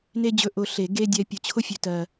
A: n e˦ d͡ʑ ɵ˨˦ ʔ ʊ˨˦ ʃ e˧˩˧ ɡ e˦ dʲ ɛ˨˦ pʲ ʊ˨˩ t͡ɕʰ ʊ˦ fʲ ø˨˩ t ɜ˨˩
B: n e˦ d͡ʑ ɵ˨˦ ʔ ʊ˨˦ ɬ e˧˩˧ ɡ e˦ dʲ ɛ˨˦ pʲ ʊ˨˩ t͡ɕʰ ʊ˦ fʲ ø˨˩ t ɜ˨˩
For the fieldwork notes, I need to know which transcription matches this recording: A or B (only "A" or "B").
B